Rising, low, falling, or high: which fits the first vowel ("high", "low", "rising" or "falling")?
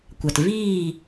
low